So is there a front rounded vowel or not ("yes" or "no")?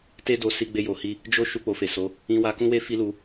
no